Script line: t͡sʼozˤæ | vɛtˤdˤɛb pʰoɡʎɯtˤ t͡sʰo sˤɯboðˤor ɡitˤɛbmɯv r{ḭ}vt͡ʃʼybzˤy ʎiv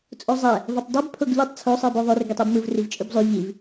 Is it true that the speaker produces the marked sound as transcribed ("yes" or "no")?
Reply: no